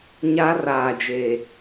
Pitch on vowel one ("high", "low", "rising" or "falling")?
high